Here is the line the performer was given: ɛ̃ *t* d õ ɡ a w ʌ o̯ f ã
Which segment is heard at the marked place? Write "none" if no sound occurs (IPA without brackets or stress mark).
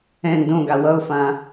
n